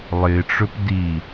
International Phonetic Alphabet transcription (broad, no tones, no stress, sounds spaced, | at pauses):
lˠ ɪ ʈ͡ʂ ɵ p d i